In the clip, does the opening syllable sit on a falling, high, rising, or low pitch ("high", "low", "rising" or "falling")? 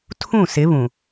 falling